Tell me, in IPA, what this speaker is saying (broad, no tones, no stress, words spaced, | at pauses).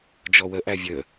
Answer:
d͡ʒɔwəʔæ vʲə